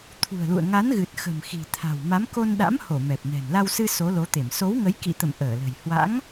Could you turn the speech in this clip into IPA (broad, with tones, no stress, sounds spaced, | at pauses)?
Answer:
t̪ʰ ṳ˨˩ ə̯ l ṵ˧˨ ə̯ ŋ a˨˦ n ɣ ɨ˨˩ t̚ x ə̤˨˩ m x i̤˨˩ t̪ʰ a̤˨˩ w m a˨˦ m k o˧ n ɗ a̰˧˥ m h o˧˩ m ɛ˨˩ p̚ n ɛ̤˨˩ n l a˧ w s ɨ˧ s o˨˦ l o˨˦ t̪ e˧˩ m s o˨˦ w ŋ ə˨˦ j k ḭ˧˨ t̪ ə̰˧˨ m ʔ əː˧˩ l ə̤˨˩ j h w a̰˧˥ ŋ